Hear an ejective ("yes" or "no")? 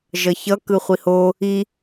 no